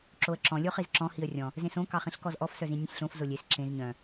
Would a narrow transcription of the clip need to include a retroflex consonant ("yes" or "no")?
no